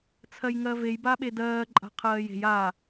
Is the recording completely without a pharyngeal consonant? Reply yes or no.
yes